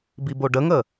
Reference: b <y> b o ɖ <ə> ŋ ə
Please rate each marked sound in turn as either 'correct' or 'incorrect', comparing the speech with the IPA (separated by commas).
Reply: incorrect, correct